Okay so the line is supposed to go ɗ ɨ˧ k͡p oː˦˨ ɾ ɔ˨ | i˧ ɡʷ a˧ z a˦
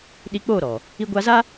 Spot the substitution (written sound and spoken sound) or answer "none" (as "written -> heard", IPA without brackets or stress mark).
ɨ˧ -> i˧